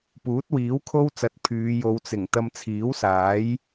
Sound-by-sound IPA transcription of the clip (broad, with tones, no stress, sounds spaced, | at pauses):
p uː˨˥ t̚ w iː˨˥ w kʰ o˥ w t͡s ɐ˨˥ t̚ pʰ yː˨˧ j o˨˧ w t͡s ɪ˨˩ ŋ t̪ ɐ˧ m t͡sʰ iː˨˥ w s aː˨˥ j